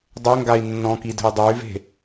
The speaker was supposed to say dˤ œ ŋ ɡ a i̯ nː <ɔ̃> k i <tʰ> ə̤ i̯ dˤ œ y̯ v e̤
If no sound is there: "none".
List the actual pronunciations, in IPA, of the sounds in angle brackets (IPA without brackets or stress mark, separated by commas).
ɔ̃, d